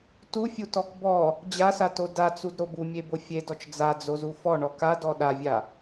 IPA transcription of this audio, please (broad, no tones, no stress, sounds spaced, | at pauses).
t u fʲ u t ɔ k b ɔ | d͡ʑ a s a t o d a t͡s u d ɾ o b u mʲ e b o fʲ e d ɔ t͡ʃ d͡z a d͡z o z u f ɔ ɳ ɔ k a d ɔ ɗ a vʲ a